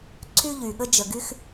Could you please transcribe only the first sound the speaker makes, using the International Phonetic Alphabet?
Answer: ǀʰ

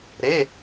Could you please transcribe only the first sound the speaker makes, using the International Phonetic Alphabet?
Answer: ɾ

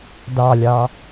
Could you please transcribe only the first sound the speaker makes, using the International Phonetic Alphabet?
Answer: d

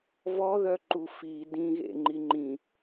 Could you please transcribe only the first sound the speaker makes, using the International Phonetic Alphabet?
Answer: v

